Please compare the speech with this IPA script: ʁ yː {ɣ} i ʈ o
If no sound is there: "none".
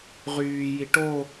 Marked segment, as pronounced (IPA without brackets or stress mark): j